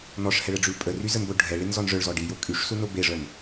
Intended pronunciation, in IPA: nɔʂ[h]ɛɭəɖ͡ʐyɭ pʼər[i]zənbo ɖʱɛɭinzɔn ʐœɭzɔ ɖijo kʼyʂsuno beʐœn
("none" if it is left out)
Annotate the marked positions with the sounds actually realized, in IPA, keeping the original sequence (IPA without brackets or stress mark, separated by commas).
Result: h, y